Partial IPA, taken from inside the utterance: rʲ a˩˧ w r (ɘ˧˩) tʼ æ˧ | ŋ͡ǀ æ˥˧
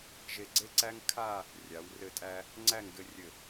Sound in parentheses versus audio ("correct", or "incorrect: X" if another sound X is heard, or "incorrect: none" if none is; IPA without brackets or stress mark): correct